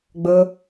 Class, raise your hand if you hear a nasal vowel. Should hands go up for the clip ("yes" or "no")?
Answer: no